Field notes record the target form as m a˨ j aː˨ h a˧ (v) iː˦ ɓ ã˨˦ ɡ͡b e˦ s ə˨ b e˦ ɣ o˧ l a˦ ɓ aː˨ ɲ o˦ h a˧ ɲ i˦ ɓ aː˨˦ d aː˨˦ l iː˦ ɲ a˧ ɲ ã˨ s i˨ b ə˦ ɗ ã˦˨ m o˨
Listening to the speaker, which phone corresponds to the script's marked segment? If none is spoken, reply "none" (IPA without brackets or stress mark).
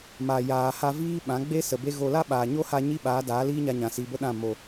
v